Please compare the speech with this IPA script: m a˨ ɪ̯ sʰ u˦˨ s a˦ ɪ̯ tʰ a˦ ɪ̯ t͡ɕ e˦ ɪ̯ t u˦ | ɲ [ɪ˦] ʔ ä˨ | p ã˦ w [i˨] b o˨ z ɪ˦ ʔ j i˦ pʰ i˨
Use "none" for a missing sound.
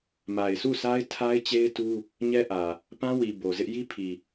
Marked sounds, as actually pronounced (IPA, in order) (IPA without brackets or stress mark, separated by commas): ɛ˦, i˨